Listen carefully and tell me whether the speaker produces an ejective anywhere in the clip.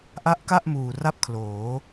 no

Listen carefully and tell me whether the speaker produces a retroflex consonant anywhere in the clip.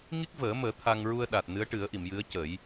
yes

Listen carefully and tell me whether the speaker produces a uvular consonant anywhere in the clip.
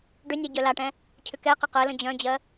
yes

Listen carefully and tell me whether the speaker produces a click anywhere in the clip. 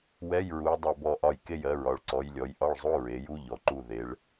yes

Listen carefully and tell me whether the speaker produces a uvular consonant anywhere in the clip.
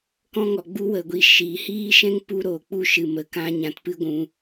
no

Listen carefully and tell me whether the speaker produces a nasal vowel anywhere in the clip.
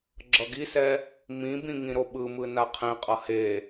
yes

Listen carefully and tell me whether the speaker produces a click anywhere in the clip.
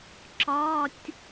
yes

